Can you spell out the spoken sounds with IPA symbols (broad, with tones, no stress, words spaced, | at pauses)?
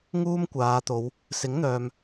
ŋuː˥mkʷaː˨˧t̪o˨˧w | sɪ˨˥ŋn̪œː˨m